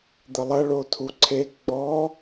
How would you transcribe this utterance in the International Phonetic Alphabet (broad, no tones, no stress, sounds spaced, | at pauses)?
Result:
d̪ ə lˠ ɐ ɭ o tʰ u ǀʰ e ɡ͡b ɔ